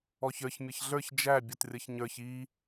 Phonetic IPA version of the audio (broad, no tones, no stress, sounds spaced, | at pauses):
ɔ ç ə˞ ç mʲ ʌ ç ɮ ə˞ ç d͡ʒ æ bʲ ʌ t rʲ ʌ ç ɲ ə˞ ç i